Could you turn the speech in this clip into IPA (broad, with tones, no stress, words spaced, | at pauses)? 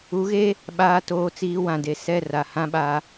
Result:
u˨˦ɣe˦ | ɓaː˨toː˨t͡siː˨ wã˨de˨ sɛ˦˨ ra˨hã˦ɓa˦